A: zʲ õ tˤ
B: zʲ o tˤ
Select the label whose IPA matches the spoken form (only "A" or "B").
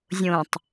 A